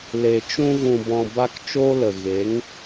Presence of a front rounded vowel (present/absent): absent